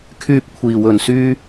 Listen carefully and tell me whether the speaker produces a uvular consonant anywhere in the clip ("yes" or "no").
no